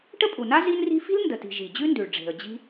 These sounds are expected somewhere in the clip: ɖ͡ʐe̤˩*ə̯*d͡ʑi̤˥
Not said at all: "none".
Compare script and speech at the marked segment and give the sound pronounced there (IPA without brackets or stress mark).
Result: ə̯